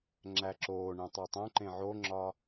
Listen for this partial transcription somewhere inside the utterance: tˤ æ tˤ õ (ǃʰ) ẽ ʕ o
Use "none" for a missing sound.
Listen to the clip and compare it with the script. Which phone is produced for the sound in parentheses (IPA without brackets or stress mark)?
ǃ